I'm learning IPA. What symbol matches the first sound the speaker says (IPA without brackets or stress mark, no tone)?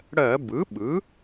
ɽ